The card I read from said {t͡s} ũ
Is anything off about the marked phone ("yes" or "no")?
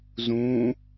yes